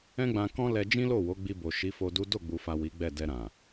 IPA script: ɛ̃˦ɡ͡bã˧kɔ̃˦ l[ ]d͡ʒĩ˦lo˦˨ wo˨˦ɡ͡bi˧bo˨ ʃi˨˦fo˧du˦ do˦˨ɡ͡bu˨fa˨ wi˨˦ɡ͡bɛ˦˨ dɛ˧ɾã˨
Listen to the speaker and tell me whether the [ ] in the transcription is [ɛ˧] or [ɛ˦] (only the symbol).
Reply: ɛ˧